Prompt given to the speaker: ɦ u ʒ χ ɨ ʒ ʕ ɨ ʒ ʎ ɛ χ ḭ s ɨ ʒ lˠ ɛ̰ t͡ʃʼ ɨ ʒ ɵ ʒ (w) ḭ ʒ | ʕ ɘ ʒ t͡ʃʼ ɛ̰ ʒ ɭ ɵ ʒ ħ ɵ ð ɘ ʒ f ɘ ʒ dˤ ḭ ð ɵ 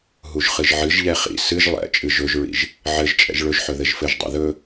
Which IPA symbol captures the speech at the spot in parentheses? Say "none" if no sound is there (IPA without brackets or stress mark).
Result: ɹ